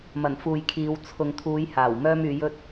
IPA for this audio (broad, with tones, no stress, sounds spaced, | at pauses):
m ɐ˨˩ n f uː˨ j kʰ iː˨˧ w t͡sʰ ʊ˨ ŋ t̪ʰ uː˨˧ j h aː˨˩ w m œː˥ m yː˨˧ j ɵ˥ t̚